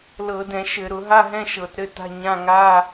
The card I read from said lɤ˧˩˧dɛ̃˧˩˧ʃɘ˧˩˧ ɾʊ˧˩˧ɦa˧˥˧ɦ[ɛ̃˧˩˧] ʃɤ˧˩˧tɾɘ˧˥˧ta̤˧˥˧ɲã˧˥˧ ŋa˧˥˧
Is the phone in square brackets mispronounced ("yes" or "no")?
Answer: yes